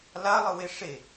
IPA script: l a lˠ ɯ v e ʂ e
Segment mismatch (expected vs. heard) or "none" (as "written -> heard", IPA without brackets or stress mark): v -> w